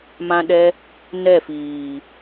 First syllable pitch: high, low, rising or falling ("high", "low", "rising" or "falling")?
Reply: high